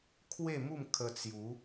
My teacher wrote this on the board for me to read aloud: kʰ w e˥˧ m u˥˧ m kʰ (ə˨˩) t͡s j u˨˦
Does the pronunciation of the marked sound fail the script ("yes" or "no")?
yes